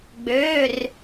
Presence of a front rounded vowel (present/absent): present